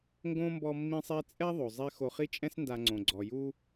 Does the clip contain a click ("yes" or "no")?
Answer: yes